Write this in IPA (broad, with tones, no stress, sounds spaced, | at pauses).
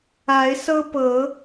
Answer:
a˨˦ ɪ̯ s ɤ˦ p ɤ˨˦